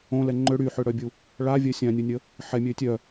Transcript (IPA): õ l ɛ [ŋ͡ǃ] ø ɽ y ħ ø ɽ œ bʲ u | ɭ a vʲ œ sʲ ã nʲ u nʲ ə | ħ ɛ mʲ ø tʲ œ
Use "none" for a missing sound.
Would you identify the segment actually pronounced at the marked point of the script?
ŋ͡ǃ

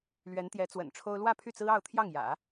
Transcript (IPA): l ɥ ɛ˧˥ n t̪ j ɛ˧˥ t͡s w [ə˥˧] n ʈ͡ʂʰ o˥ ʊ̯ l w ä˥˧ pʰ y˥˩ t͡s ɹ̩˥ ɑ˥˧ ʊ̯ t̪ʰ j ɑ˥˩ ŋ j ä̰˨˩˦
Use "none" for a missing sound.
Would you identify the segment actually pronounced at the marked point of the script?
ə̰˨˩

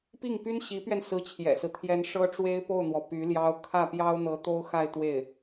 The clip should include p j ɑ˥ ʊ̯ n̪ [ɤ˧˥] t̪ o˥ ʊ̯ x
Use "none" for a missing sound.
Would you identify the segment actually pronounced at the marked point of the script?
ɤ˧˥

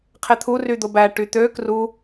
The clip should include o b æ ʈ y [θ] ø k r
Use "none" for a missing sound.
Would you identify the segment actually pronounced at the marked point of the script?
t̪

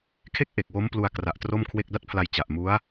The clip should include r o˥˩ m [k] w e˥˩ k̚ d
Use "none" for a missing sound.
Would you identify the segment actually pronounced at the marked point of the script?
kʰ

